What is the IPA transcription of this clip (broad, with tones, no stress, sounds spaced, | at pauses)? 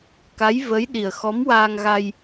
k a˧˥ j v ə˧˥ j ɗ i˨˩ ə̯ x ɔ˧˥ m w aː˧ ŋ ɣ a˧ j